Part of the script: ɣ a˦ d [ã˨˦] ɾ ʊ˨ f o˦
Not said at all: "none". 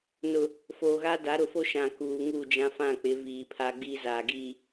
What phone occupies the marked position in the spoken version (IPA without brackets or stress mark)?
a˨˦